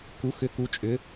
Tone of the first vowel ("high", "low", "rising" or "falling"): rising